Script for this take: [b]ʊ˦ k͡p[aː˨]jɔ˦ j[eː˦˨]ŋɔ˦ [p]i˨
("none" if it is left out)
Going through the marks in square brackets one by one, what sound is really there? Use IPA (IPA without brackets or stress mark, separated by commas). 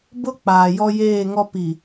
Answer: b, aː˨, eː˦˨, p